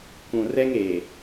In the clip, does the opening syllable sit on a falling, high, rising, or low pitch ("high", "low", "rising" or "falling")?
low